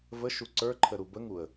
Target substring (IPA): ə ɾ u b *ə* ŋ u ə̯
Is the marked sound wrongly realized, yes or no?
no